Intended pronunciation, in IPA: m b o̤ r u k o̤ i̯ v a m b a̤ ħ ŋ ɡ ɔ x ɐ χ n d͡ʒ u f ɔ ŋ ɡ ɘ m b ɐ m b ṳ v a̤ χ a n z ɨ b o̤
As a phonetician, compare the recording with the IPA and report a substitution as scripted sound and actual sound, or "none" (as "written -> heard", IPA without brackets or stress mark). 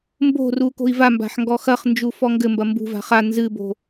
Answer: none